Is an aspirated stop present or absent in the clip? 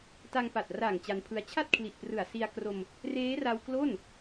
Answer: present